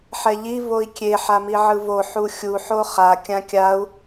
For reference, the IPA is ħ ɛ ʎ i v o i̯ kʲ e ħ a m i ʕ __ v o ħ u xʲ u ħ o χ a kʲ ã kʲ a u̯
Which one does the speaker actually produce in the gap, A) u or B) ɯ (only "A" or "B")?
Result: B